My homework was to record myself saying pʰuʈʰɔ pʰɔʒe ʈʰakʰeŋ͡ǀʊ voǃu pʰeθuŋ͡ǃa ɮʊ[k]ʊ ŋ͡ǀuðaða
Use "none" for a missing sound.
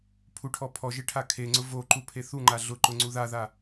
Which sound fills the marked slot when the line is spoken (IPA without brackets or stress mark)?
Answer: ǃ